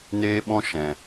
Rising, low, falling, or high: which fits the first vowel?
high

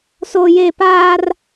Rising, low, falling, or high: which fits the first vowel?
high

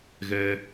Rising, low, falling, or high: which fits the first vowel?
high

